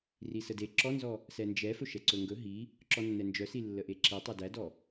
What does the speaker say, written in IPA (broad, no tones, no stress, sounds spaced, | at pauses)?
r i s ə d e ǁ ɔ n z ɔ | s ɛ n d͡ʒ ɛ f ɵ ʃ ɛ ǀ ɵ ŋ ɡ ɵ ɦ i | ǁ ɔ nː ɛ n d͡ʒ œ s i lː ə ʔ e ǁ i tˤ œ d æ d ɔ